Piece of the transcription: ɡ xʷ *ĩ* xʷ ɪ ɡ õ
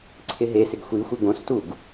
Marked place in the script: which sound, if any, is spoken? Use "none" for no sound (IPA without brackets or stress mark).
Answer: i